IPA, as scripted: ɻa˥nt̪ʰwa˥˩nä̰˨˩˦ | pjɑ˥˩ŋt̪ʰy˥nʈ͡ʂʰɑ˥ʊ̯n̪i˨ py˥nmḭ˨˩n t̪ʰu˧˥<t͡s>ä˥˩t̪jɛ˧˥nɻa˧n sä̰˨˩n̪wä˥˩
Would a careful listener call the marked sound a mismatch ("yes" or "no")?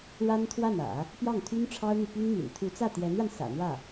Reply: no